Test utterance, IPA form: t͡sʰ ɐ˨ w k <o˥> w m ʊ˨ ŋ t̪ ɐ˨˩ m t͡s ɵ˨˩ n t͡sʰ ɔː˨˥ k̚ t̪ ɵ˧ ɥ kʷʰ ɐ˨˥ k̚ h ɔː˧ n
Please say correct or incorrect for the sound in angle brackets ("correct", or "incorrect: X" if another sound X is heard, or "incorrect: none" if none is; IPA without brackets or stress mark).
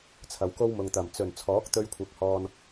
correct